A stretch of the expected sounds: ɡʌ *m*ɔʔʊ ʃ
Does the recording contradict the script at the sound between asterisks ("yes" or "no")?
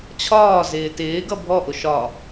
yes